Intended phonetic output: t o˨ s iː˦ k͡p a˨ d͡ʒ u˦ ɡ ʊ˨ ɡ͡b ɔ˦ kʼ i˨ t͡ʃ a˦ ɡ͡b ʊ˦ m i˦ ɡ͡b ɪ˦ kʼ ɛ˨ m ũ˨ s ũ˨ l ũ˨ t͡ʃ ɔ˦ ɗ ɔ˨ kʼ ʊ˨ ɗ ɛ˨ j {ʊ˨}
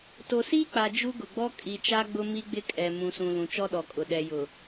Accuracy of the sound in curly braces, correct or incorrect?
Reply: correct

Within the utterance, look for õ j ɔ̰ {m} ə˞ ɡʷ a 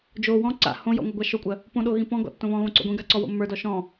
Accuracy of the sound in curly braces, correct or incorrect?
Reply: incorrect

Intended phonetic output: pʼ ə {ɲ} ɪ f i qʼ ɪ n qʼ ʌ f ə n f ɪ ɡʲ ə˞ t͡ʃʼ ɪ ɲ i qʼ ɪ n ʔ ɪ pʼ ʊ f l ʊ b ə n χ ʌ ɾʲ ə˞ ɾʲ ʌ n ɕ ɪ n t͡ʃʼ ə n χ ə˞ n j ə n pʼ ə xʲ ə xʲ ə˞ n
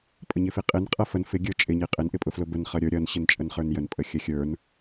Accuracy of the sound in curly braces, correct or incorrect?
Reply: correct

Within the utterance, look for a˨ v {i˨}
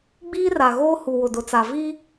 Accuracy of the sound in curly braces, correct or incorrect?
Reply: incorrect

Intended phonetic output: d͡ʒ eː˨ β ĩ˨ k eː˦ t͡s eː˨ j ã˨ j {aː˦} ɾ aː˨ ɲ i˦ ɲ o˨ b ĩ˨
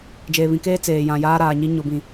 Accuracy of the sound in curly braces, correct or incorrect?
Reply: correct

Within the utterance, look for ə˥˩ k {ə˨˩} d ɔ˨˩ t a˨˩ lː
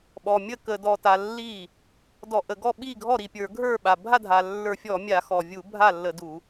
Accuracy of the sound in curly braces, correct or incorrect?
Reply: correct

